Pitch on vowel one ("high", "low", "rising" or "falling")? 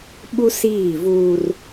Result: high